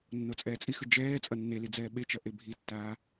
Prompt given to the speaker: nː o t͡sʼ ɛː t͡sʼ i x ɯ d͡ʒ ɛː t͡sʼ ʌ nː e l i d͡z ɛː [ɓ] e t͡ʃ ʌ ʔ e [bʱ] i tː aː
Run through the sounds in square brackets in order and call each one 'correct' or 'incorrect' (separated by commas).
correct, correct